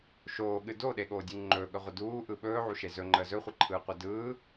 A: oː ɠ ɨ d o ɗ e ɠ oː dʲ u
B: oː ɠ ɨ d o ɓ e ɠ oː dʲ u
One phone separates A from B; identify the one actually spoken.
A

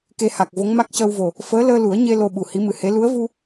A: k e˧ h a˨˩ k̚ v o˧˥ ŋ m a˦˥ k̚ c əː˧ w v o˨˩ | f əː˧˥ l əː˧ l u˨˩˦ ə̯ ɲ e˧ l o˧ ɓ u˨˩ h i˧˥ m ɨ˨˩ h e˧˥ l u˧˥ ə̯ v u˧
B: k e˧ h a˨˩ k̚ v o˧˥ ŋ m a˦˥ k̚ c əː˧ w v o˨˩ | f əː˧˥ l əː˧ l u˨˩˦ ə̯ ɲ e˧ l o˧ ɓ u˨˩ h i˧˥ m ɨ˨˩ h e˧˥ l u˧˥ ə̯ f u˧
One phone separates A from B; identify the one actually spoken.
A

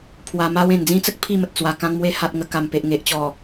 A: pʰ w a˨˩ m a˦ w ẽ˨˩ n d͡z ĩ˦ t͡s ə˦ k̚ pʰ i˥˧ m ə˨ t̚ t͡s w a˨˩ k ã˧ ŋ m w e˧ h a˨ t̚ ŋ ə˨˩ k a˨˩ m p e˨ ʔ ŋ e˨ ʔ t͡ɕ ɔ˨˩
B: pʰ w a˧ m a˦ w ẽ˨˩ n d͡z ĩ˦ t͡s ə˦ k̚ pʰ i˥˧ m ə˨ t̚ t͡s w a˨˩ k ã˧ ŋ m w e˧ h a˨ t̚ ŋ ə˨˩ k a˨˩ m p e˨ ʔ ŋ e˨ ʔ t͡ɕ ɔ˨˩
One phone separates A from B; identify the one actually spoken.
B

